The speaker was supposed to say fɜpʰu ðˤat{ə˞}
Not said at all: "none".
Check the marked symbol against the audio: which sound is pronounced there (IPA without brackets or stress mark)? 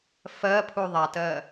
ɜ